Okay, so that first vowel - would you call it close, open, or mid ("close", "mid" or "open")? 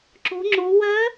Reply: mid